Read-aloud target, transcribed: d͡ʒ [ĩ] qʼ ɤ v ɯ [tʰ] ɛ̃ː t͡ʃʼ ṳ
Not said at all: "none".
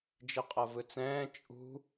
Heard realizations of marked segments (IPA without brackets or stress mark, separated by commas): i, t͡s